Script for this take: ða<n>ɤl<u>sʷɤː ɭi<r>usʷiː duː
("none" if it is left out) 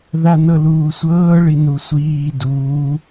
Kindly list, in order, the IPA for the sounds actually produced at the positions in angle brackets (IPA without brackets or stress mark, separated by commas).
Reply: n, uː, n